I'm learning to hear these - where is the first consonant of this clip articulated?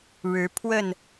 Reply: retroflex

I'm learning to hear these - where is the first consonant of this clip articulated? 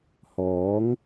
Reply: throat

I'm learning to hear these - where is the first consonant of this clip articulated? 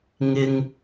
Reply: velum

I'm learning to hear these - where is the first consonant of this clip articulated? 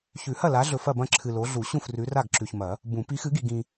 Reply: palate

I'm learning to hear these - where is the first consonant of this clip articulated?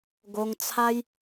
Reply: velum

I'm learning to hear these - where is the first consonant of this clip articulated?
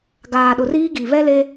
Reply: velum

